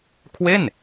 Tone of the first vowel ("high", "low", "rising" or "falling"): falling